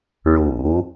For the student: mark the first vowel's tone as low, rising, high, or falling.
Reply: low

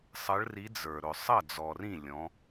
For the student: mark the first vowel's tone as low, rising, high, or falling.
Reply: rising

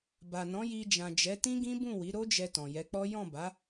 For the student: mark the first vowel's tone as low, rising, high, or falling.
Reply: low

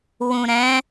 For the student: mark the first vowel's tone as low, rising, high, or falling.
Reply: low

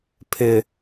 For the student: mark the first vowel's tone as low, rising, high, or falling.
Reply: low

